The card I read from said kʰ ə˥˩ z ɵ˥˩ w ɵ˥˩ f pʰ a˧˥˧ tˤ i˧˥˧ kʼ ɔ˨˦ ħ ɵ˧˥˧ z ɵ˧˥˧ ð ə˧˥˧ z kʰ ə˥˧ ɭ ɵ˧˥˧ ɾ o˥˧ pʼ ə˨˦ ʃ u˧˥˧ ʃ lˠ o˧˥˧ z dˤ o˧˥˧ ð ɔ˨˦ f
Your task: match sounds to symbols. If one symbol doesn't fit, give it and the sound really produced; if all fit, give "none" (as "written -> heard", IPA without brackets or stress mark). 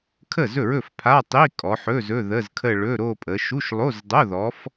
w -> ɹ